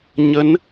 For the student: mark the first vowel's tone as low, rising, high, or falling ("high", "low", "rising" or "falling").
rising